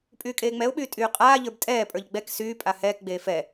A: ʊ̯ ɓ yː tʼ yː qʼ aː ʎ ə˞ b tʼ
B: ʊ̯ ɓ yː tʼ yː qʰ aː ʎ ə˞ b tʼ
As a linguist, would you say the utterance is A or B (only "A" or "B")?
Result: A